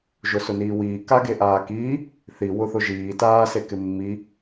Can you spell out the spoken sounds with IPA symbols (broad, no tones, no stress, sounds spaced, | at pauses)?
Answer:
ʒ ʊ s ʊ n iː w iː k a ɡ e ʔ aː k iː | θ i w ʊ θ ʊ ʒ iː t aː s e k ɪ mː i